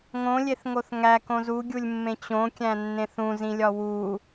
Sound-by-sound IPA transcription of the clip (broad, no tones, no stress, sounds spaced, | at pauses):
ŋ õ lʲ e θ ŋ o θ ŋ æ k õ z u ɡʲ u lʲ mː ẽ t͡ɕ õ kʲ æ̃ nː ẽ θ ũ z ĩ lʲ ɒ w u